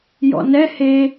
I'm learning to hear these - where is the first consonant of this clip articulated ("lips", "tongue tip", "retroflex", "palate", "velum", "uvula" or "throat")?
palate